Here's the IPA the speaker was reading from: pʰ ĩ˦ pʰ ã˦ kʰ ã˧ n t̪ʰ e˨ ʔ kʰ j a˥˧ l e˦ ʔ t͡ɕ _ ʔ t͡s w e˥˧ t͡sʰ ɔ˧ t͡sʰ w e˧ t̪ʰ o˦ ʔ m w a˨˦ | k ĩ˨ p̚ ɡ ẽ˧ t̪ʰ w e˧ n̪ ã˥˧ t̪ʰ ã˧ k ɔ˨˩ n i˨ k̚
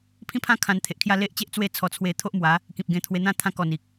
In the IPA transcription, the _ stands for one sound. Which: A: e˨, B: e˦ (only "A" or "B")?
B